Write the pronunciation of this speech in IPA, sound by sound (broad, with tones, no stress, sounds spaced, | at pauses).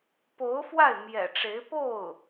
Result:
p o˧˥ ʊ̯ f w a˥˩ ɪ̯ m j ɛ̰˨˩ ʈ͡ʂ e˧˥ ɪ̯ p o˥˩ ʊ̯